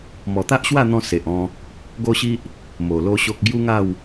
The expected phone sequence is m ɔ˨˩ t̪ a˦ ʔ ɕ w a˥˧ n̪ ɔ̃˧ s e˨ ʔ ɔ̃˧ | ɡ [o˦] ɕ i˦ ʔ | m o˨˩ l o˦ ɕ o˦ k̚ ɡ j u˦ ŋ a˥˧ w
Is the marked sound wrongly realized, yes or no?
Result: no